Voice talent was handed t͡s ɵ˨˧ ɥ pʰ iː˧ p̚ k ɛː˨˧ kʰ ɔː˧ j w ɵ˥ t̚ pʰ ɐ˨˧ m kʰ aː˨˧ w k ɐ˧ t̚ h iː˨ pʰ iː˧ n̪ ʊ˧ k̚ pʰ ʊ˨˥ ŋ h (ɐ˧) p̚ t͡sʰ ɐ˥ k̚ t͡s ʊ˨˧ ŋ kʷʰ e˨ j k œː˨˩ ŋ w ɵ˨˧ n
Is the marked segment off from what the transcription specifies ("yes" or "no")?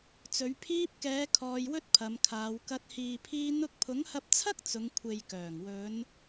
no